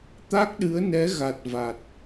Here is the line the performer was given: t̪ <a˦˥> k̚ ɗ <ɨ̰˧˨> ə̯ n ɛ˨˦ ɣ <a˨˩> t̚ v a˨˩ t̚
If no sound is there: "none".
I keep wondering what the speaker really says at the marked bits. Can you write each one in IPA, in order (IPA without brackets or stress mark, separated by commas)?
a˦˥, ɨ˨˦, a˨˩